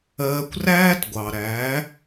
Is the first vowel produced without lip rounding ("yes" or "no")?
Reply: yes